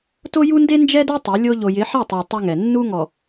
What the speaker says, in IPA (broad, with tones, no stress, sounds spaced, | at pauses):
t o˦ j u˦ n d e˦ n d͡ʒ ɛ˦ d ɛ˦ tˤ e˨˦ lʲ o˦ ʎ o˨ j ɪ˨˦ ħ ɛ˦˨ tˤ a˨ tˤ u˦ ŋ ɛ˨ nː u˦ ŋ ɔ˨